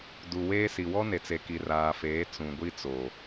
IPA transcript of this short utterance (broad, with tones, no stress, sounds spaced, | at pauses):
d u˨ w eː˦ s i˨ w ɔ˦ n e˨ t͡s e˨ k i˨ r aː˨ f eː˨˦ t͡s ũ˨ ɡʷ i˦ t͡s o˨